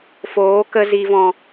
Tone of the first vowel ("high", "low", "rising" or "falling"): rising